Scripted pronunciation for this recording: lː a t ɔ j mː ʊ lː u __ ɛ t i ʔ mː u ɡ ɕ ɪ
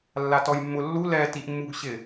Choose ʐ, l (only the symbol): l